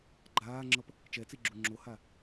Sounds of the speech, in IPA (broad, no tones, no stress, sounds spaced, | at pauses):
ɡ͡ǃ aː ŋ͡ǁ ʌ p | t͡ʃ ɛ t͡s i ɡ͡ǁ u ŋ͡ǁ o h a